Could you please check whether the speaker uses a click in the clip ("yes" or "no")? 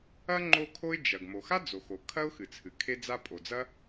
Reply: yes